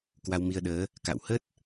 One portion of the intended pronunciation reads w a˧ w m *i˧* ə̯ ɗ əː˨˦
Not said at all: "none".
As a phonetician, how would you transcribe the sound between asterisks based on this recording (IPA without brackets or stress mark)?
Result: i˧